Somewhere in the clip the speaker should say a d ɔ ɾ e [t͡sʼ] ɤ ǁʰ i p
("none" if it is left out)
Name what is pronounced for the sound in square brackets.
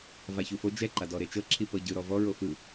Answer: t͡ʃ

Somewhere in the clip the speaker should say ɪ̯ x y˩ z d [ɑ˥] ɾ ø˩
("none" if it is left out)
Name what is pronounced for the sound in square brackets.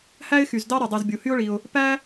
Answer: ɑ˥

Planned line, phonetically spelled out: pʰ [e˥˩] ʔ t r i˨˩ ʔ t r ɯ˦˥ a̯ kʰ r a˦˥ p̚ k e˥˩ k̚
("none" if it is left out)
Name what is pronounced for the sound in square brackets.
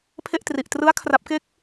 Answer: e˥˩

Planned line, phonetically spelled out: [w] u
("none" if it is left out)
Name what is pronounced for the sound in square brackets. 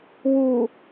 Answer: w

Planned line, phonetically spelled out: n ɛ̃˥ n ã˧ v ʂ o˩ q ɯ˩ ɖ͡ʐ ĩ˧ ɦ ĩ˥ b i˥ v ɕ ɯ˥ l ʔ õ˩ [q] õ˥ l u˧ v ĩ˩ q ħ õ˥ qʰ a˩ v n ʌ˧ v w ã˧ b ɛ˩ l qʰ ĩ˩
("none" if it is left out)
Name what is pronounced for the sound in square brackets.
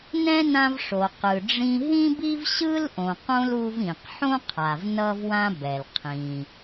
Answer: q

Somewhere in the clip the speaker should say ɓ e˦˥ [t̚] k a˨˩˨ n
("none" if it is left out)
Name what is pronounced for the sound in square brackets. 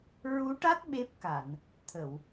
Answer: p̚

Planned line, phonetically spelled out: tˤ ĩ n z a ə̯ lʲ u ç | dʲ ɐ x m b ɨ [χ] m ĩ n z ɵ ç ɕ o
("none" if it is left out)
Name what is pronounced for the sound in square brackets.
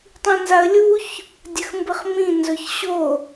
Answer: χ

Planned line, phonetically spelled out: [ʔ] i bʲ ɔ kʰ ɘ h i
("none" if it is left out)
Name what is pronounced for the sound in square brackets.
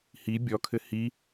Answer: h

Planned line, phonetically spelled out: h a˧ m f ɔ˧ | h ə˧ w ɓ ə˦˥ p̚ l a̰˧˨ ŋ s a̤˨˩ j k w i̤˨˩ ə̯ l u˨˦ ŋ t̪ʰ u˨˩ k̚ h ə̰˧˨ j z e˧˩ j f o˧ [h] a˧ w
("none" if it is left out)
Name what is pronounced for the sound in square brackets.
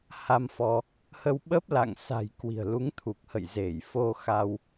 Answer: x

